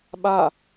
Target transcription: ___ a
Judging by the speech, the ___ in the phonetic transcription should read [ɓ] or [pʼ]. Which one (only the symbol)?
ɓ